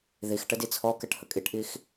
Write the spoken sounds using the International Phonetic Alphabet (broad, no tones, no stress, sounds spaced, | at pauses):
ð i x ʈ ə d i t͡sʰ ɔ k ɛ ʈ h ə kʼ i ʈ ʔ i x